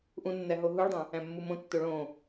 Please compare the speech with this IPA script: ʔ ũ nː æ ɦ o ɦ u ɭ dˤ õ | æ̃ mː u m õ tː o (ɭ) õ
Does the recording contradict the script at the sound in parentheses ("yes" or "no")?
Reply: no